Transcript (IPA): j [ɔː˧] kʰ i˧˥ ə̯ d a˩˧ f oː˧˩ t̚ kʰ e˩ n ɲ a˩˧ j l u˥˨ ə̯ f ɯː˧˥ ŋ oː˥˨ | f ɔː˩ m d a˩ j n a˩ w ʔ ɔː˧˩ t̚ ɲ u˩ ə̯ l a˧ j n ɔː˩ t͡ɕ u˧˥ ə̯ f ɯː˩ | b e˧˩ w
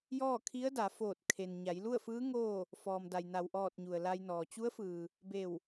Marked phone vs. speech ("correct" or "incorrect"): incorrect